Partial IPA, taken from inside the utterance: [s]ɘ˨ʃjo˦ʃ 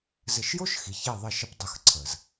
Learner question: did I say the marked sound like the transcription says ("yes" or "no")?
no